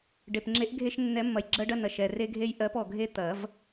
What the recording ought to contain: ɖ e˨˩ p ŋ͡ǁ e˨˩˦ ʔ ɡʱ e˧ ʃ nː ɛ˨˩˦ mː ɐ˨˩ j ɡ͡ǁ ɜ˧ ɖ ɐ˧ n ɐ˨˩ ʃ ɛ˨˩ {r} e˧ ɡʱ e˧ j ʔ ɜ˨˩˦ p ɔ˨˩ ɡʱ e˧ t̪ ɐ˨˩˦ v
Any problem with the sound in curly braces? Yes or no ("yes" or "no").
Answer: no